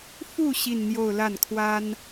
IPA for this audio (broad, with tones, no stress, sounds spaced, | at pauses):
f u˥˧ ɕ i˥˧ n n̪ j o˥˧ ʊ̯ l a˥˩ n kʰ w a˥ n